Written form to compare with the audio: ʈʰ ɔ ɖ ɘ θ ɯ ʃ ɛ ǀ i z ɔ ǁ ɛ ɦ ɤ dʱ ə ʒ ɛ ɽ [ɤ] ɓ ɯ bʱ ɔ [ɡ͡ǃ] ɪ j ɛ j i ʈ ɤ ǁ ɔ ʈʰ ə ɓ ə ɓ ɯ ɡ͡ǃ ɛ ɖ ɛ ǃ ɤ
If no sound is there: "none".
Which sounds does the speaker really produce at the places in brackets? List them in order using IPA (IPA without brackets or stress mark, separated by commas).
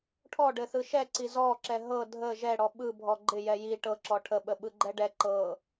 ɔ, ɡ͡ǃ